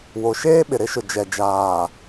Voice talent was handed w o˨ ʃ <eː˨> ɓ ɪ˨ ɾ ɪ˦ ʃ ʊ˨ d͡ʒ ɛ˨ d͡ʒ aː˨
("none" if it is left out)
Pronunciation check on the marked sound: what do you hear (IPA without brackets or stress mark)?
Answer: eː˦